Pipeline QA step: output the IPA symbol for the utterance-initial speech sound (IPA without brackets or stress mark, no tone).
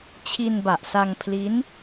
t͡ɕʰ